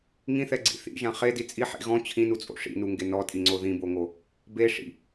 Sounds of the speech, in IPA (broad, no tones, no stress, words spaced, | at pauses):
ŋĩθɛɡ͡ǀḭ θḭʒã χedi t͡sʼi ħḭ ɣɔ̃ t͡ɕʰĩnut͡sʼo̰ ʂḭnuŋɡe nɔtʼiŋ͡ǀo ðĩboŋo | beʂḭ